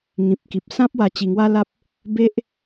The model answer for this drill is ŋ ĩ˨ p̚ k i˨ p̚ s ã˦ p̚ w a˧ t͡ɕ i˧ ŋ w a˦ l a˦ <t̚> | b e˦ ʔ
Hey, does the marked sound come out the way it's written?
no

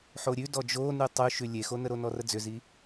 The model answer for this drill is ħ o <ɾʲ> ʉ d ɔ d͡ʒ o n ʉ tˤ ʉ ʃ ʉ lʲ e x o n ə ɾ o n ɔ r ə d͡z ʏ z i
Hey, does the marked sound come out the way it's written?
yes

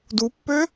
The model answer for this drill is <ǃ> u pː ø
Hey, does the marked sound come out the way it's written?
no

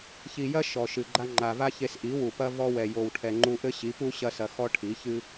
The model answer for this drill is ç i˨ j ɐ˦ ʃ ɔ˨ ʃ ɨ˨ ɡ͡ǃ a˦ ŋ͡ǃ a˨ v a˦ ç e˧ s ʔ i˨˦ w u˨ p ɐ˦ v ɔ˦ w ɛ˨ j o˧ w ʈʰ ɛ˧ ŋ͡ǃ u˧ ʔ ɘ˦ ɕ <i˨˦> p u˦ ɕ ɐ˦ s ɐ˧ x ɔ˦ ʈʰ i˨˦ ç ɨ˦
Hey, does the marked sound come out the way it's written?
yes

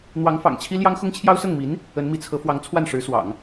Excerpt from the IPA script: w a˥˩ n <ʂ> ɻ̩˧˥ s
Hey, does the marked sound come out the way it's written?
yes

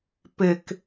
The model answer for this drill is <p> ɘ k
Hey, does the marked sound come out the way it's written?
yes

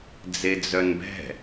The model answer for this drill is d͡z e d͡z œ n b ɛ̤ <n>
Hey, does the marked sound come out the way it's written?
no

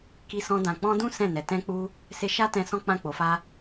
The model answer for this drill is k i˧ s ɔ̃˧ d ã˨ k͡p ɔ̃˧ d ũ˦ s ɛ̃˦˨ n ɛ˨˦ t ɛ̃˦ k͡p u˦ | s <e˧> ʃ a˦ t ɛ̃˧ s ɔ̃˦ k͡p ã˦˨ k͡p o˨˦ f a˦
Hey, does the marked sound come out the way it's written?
yes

